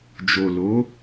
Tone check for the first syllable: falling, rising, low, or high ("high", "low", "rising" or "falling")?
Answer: low